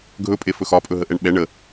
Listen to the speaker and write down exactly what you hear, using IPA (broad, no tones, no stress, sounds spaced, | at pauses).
ɡʱ ɵ pʼ e f ɵ x ɒ pʼ ɵ ɦ ə ʔ ɛ ɳ ɓ ɛ ɳ ə